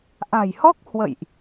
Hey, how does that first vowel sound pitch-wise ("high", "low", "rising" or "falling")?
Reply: low